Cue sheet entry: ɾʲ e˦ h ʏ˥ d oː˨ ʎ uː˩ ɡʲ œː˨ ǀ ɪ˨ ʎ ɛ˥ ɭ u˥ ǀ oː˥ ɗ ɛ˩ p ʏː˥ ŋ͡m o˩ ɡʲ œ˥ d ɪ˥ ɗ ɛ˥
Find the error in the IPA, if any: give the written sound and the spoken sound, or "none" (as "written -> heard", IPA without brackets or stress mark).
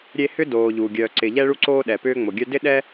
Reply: none